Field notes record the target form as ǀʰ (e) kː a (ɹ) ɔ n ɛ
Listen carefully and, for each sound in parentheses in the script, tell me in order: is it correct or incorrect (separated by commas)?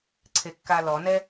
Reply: correct, incorrect